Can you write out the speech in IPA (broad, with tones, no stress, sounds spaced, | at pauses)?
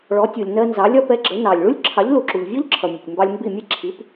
ɭ ɔ˩˥ tʲ u˩ lʲ n ɜ˧ n z ɑ˩˥ lʲ ɒ˧ p ɛ˩˥ ɡ͡ǁ ə˩˥ n ɑ˩ lʲ ɭ u˥ lʲ ǁʰ ɑ˩˥ ʎ l u˩ ǁ u˩ ʎ vʲ ɔ˥ ʎ ǁʰ ʌ˩ mʲ ɛ˩ tʲ m b ɑ˧ lʲ m b i˥˩ mʲ ɛ˥ ǁʰ i˩˥ p